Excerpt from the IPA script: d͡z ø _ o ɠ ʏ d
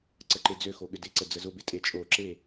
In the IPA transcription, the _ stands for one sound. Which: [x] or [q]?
x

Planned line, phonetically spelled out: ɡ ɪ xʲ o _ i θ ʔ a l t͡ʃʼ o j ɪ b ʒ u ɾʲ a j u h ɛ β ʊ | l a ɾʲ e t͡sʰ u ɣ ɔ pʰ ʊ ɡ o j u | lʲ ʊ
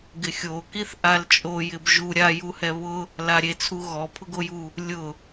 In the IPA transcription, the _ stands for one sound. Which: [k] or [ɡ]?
k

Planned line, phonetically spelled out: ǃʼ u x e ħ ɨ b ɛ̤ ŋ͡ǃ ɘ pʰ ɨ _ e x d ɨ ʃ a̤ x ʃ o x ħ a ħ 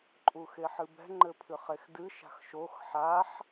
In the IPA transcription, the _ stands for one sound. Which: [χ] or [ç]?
χ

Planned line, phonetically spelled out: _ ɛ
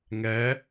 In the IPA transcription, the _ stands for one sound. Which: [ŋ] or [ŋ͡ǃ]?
ŋ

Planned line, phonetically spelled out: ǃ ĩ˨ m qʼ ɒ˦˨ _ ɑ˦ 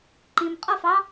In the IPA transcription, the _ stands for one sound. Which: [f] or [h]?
f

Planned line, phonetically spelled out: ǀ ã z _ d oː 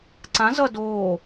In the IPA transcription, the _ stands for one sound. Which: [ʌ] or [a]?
ʌ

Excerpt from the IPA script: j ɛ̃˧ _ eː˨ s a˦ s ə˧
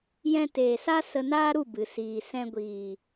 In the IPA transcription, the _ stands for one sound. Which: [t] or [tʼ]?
t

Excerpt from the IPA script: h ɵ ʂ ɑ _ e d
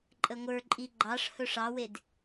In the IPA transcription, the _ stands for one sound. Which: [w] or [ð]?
w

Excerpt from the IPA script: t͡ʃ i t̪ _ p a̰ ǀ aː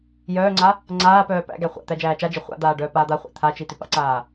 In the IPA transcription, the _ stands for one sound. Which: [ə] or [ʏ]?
ʏ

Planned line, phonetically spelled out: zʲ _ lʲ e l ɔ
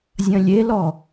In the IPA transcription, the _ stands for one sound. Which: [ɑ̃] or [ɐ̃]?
ɐ̃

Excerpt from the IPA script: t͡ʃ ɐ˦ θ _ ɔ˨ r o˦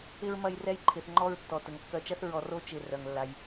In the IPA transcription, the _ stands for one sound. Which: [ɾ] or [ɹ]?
ɹ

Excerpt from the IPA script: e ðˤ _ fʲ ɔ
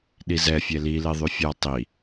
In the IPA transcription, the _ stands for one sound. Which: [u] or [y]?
y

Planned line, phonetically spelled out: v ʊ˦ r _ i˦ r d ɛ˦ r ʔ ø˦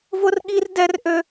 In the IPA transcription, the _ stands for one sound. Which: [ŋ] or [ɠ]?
ɠ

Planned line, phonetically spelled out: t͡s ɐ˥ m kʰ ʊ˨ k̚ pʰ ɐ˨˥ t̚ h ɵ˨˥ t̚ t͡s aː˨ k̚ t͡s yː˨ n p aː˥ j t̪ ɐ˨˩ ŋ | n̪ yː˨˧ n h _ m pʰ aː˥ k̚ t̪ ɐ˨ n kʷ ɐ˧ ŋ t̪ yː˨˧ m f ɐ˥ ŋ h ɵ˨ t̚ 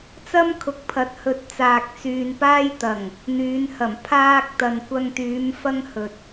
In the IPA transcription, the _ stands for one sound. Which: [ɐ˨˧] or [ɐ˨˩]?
ɐ˨˩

